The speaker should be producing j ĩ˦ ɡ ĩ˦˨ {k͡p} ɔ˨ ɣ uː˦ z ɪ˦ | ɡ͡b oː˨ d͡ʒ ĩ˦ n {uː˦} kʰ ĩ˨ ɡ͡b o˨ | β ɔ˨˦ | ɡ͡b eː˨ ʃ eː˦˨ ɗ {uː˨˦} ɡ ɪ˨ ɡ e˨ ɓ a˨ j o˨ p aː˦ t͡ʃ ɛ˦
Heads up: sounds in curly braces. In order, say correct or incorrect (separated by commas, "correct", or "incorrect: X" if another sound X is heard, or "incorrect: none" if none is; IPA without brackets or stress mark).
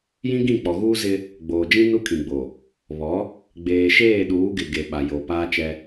correct, incorrect: u˦, correct